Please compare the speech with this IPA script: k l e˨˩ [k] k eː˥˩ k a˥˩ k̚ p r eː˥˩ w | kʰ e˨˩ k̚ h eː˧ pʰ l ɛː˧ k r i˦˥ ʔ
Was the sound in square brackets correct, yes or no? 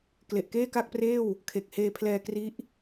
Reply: no